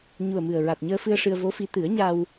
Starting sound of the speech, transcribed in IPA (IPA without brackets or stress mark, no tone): ɲ